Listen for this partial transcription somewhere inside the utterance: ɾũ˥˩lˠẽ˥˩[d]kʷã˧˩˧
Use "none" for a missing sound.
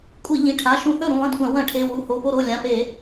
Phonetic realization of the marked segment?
d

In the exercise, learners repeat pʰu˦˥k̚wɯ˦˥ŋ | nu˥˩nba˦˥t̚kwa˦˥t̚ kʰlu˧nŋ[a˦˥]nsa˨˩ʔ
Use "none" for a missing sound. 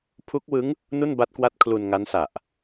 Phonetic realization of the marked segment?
a˦˥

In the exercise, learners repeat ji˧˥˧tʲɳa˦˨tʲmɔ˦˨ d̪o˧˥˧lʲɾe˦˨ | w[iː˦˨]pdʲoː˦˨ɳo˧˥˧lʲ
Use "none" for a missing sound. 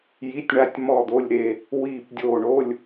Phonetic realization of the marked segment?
iː˦˨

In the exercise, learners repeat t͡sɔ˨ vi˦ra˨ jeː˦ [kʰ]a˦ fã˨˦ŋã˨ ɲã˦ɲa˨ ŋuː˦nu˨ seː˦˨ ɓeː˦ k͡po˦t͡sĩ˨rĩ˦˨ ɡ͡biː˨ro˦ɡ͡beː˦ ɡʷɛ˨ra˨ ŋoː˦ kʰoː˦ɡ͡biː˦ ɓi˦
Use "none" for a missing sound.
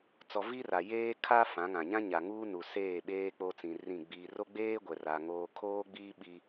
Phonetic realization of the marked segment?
kʰ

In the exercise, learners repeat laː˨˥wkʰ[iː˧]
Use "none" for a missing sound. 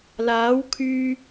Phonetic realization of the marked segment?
yː˧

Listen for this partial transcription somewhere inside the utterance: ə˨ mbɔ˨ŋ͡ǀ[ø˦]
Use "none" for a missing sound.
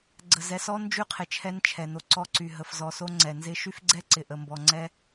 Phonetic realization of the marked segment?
ɛ˦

